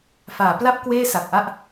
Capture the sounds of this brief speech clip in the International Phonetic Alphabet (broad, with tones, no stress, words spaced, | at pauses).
faː˩˦pla˥˩p̚ kweː˥˩sa˨˩k̚ʔa˥˩ʔ